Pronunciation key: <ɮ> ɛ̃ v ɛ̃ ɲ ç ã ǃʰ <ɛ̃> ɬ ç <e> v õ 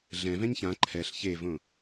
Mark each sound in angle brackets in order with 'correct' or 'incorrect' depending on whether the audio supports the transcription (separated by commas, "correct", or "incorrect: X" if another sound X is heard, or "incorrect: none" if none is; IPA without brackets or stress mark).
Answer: correct, incorrect: ɛ, correct